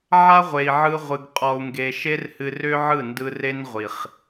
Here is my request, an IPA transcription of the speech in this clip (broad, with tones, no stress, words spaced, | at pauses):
ʕa˦ʁʷe˨i̯ʕɯ˧ʁʷɨ˨ɡ qʼɔ˨u̯ŋɡe˨ʃe˦rhɨ˧ rʏ˦ʕɯ˦˨ndɯ˧ re˦nʁʷi˨χ